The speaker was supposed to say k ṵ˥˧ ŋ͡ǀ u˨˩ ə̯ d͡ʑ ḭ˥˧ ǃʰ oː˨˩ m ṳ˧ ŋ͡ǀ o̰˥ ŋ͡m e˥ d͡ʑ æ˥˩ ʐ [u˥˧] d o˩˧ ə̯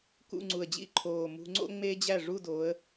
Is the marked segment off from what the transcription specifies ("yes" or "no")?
no